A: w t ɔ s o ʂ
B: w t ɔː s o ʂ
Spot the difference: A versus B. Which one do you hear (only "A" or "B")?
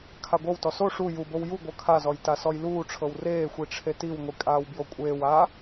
A